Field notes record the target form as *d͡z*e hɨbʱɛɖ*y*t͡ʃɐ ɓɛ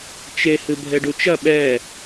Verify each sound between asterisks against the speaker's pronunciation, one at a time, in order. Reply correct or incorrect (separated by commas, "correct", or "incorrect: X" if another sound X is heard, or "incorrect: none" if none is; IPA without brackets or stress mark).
incorrect: t͡ʃ, incorrect: u